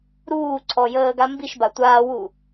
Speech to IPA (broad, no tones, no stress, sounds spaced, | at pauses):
ɾ uː ǀʰ ɔ j əː ɡ a m b i ʃ b a tʷ aː w u